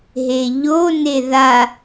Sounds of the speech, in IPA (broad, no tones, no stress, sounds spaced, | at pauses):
ɦ e ʎ o n e ð a